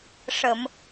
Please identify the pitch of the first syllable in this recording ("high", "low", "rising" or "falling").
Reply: low